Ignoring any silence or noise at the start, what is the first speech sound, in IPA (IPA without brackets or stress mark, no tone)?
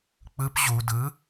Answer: k͡p